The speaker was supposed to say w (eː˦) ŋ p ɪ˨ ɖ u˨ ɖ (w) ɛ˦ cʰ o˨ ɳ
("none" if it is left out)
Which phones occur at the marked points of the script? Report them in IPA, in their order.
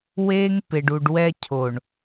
eː˦, w

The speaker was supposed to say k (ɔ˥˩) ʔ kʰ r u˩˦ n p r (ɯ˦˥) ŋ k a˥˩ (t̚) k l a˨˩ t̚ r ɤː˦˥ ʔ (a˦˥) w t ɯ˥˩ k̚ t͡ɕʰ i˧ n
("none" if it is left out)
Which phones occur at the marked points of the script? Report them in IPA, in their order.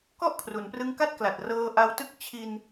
ɔ˥˩, ɯ˦˥, t̚, a˦˥

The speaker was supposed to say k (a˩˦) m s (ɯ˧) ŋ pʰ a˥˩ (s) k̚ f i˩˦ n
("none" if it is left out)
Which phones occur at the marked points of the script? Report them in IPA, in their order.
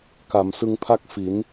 a˩˦, ɯ˧, none

